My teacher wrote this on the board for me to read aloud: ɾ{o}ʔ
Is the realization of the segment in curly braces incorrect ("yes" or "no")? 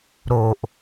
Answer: no